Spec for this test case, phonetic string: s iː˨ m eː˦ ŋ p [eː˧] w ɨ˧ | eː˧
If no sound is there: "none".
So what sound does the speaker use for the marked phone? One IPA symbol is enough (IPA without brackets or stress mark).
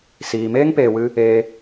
eː˨